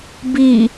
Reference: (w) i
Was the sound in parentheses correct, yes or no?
no